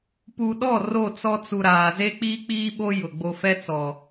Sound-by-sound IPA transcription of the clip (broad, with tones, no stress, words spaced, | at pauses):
pu˨ɗɔ˦˨ ro˦˨t͡sɔ˦t͡su˨ɾaː˨ ze˦k͡piː˦k͡piː˦ɓo˦ jʊ˨ ɡ͡bo˨fɛ˦t͡sɔ˨